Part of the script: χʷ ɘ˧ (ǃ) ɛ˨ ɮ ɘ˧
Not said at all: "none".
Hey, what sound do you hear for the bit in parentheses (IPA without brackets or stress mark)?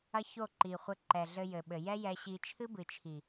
ǃ